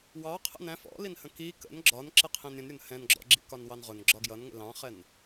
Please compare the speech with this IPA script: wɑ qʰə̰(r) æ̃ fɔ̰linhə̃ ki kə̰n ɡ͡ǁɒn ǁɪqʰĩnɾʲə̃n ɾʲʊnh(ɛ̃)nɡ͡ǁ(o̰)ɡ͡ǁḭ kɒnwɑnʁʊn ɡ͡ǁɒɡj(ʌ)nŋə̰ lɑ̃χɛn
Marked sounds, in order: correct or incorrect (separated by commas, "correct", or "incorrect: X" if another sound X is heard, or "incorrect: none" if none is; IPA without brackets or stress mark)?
incorrect: n, correct, incorrect: ɔ̰, correct